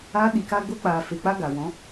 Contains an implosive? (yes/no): yes